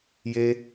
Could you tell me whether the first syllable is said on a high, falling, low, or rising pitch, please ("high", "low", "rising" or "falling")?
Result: high